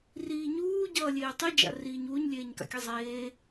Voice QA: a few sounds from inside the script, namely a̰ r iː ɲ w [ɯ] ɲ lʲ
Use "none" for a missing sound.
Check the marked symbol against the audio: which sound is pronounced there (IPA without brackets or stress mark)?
u